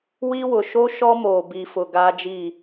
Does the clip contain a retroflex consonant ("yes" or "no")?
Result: no